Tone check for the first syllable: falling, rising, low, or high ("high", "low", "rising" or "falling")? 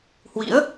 rising